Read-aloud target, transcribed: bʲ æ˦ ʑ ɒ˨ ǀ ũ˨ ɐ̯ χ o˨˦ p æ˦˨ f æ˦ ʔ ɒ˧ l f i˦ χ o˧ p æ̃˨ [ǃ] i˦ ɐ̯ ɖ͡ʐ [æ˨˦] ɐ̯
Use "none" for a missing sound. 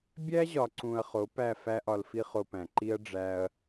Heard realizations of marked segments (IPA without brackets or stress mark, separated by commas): ǃ, æ˦